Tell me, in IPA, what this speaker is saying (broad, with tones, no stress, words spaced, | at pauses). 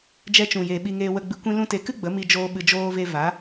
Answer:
d͡ʒɛ˧t͡ʃũ˨jeː˨ ɓi˧ŋeː˧wə˧ɡ͡bɨ˧ kʷĩ˧lũ˧te˨˦kɨ˦ ɡ͡bə˨˦mi˧d͡ʒoː˧ ɓɨ˨d͡ʒoː˧ ve˧va˨˦